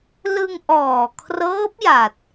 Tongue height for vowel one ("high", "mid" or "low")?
high